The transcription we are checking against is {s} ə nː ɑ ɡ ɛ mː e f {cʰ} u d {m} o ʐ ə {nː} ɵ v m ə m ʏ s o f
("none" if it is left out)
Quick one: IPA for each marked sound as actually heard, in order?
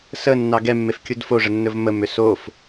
s, kʲ, f, nː

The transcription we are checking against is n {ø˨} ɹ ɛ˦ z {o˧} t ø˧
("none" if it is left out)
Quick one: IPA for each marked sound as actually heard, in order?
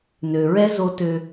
ø˨, o˧

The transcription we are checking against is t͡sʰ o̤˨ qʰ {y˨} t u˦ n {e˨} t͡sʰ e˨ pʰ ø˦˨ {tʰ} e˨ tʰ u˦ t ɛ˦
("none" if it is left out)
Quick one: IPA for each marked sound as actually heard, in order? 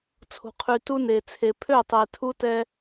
y˨, e˨, tˤ

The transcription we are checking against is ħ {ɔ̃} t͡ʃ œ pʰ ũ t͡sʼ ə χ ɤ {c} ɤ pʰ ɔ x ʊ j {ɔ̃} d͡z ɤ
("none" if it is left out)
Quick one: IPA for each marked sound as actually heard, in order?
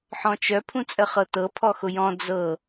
ɔ̃, t, ɔ̃

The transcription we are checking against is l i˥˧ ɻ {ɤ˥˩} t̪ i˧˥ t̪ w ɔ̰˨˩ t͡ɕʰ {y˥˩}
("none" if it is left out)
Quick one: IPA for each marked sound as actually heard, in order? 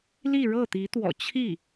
ɤ˥˩, i˥˩

